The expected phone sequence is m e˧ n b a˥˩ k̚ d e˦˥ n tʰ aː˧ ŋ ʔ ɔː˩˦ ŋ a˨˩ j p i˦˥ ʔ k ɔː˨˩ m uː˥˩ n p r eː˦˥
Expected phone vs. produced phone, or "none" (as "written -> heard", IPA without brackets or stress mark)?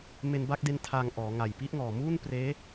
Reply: k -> ŋ